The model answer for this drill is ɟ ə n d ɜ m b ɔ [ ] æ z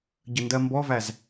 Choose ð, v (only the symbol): v